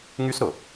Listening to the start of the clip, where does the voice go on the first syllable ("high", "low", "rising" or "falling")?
high